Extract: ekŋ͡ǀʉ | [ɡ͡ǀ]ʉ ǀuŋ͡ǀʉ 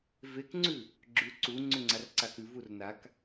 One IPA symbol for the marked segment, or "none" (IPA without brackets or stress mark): ɡ͡ǁ